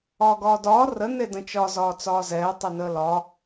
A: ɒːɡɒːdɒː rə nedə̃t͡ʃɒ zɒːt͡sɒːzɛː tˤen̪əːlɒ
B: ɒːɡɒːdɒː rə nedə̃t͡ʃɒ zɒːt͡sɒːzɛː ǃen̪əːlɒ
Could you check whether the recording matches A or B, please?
A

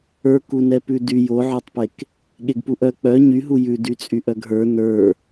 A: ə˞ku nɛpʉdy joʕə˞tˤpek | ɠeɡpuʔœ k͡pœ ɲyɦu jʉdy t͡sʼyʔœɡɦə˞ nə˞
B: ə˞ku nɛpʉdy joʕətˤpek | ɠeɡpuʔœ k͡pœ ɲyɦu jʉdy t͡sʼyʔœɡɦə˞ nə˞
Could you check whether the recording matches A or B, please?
A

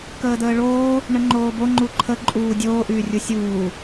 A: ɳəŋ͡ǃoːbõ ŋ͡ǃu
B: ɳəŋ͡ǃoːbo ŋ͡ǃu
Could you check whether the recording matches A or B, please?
B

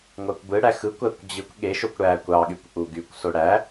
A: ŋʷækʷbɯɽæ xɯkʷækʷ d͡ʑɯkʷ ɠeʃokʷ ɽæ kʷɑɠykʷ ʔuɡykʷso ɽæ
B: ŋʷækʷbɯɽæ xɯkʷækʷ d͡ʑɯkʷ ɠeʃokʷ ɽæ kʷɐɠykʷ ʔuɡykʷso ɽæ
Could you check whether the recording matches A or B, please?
A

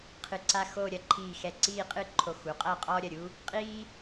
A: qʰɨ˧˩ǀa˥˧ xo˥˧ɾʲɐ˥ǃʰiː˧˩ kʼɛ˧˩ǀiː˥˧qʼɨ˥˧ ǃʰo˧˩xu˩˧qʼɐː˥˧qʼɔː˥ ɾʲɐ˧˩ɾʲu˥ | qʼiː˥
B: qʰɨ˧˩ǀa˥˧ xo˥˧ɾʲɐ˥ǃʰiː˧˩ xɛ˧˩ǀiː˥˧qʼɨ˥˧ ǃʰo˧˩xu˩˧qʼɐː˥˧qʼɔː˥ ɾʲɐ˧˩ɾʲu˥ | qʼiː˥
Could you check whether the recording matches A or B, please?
B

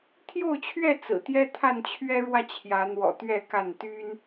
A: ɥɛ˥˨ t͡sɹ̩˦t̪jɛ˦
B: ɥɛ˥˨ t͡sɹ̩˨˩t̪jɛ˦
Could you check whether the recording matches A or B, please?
B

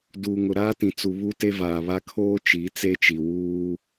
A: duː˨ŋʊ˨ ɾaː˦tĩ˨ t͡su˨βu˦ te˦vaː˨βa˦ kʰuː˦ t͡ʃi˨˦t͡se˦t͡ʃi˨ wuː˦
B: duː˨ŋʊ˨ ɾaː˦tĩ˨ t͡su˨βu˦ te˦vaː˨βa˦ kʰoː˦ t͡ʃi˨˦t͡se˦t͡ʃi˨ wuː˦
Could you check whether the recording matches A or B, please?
B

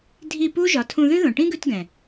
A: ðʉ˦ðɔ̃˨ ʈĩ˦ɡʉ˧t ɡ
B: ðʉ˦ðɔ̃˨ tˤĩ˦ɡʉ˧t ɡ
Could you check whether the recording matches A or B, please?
A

